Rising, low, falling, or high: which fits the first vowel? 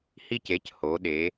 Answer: falling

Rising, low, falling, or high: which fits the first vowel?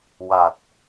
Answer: low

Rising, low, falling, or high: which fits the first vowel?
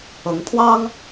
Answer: rising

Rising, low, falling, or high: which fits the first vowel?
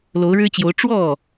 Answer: rising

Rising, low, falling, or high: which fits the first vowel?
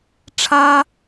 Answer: high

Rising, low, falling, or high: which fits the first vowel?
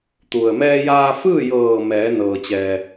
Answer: low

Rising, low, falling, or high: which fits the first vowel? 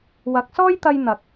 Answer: rising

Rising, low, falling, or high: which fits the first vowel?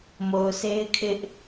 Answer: low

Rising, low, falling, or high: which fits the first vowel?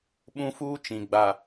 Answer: high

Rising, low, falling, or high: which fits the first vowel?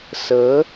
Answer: rising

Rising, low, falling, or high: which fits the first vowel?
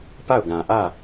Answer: falling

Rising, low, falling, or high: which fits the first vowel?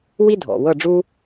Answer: high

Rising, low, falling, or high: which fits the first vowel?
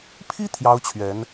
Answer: high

